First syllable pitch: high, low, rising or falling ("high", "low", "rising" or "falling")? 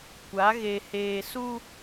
rising